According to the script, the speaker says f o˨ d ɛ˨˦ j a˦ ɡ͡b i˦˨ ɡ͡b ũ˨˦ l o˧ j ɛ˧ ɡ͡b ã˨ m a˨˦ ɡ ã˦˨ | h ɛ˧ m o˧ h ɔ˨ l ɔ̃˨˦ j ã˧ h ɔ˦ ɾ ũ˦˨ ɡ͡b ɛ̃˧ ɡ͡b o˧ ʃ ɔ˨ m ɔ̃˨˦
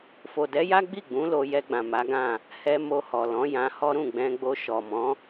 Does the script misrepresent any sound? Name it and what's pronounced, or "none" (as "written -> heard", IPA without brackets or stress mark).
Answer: none